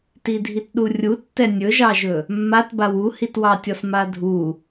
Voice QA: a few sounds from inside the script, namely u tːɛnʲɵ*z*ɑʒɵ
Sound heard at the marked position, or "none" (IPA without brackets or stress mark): ʒ